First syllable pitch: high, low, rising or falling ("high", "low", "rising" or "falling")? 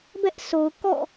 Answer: high